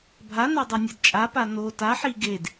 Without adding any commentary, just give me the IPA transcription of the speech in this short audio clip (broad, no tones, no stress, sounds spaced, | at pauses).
bʱ a n a dˤ i nʲ a d t͡ʃʼ a p a n o t a ħ i ɡ e d